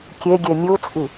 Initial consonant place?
velar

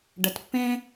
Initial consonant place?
retroflex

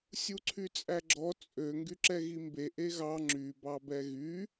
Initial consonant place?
alveolar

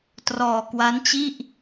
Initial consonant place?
alveolar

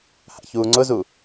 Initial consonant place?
glottal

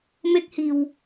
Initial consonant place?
labial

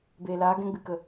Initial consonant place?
labial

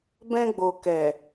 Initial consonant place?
labial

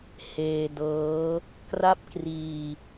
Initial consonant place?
glottal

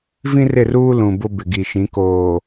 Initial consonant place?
labial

